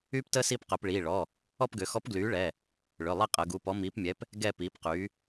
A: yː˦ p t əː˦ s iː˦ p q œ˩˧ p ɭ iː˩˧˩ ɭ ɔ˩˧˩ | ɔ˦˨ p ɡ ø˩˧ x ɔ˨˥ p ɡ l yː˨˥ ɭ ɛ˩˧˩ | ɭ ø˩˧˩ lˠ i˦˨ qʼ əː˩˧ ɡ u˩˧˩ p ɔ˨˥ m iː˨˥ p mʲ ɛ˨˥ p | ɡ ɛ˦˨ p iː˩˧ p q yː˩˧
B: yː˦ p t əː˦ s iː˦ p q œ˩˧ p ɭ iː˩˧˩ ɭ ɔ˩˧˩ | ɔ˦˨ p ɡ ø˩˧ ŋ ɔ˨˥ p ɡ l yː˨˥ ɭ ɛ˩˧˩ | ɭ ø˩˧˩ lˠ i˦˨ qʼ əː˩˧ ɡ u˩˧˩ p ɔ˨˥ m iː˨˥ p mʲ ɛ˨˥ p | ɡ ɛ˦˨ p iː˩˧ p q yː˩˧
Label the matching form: A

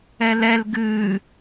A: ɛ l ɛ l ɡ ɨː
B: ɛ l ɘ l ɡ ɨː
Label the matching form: A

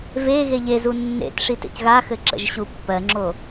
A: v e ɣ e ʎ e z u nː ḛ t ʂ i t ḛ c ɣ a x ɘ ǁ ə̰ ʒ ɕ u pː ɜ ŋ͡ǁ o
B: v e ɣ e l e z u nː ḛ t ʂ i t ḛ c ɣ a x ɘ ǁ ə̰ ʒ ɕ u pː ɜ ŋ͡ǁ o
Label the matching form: A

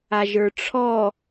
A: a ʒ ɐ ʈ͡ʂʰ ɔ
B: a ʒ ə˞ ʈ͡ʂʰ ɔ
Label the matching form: B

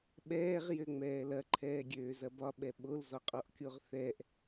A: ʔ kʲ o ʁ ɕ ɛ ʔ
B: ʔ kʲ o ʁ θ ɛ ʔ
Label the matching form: B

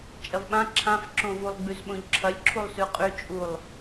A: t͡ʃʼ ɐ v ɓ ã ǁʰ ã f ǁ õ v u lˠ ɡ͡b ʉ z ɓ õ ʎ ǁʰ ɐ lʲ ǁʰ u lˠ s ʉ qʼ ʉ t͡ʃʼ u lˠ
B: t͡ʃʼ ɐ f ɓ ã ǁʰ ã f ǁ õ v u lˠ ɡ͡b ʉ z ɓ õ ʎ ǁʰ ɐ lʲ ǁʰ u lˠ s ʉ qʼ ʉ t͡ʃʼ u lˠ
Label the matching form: A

